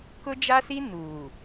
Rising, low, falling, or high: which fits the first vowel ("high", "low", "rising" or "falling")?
high